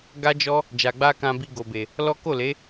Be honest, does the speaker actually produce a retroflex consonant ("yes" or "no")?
no